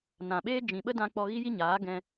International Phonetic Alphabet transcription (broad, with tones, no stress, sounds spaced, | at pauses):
n ã˨ ɓ eː˦ d͡ʒ ĩ˨ ɓ ə˦ d ã˧ k͡p ɔ˧ ɣ i˦ j i˦ ɲ aː˨˦ ɡ ɛ̃˧